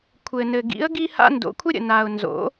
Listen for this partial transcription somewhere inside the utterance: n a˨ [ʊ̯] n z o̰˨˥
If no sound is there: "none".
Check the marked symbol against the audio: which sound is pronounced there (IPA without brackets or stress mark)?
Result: ʊ̯